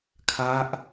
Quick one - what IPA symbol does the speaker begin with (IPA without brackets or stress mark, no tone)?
kʰ